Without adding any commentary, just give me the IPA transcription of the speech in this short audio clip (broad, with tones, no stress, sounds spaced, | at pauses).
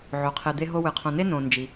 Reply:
ʕ o˩ qʰ e˨ d̪ e˥ ɦ o˥ w ɨ˩ qʰ õ˨ n e˥ n õ˨ n d͡ʒ i˩